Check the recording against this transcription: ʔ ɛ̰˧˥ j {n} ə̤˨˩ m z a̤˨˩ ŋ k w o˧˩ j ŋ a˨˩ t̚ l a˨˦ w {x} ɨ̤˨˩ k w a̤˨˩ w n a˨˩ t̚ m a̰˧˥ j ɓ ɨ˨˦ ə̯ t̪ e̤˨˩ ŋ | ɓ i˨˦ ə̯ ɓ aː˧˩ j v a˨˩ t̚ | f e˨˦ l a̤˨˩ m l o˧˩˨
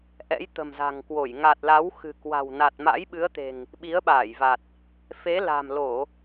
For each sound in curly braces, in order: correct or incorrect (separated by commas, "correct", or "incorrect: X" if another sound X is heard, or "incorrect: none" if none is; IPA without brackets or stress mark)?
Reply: incorrect: t̪, correct